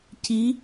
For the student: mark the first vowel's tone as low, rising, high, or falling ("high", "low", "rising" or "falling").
rising